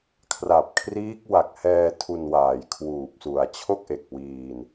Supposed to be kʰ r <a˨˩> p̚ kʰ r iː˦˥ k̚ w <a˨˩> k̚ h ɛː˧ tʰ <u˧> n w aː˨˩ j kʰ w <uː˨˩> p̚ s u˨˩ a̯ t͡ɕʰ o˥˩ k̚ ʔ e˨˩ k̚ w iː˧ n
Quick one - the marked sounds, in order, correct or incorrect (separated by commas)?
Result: correct, correct, correct, correct